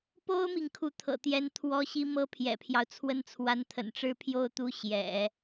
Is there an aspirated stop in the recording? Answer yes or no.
yes